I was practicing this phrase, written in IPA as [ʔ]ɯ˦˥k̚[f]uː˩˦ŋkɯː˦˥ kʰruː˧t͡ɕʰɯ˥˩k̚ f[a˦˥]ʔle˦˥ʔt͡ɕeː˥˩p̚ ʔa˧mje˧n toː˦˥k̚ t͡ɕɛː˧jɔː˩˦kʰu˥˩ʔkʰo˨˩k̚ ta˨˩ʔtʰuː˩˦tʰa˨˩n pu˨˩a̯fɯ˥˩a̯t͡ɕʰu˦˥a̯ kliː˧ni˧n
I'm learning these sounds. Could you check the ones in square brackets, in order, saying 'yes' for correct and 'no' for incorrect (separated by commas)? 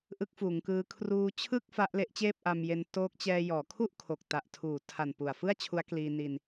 yes, yes, yes